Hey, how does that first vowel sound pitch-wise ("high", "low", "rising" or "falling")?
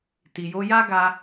low